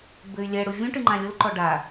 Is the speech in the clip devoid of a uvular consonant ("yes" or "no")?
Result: yes